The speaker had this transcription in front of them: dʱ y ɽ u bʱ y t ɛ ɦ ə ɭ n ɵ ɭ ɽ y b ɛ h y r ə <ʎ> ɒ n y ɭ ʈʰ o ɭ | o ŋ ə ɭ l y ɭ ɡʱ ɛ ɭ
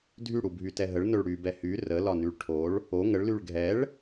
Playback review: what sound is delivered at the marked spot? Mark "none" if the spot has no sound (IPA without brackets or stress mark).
l